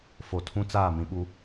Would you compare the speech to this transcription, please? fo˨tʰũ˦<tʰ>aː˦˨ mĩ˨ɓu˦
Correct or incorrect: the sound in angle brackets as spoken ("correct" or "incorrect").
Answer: incorrect